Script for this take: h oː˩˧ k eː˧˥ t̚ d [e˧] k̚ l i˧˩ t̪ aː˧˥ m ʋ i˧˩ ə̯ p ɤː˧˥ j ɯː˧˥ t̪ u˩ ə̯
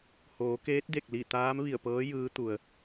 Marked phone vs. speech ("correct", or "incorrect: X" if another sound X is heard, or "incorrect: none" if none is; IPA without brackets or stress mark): incorrect: e˧˩